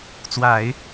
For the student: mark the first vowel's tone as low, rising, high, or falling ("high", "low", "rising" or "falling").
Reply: low